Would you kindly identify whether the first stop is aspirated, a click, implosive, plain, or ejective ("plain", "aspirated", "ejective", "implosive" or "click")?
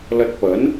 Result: plain